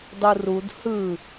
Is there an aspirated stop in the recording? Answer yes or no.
no